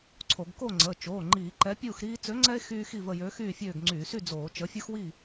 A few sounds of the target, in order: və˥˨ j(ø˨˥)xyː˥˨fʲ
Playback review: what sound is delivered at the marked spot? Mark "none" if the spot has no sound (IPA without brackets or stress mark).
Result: ø˨˥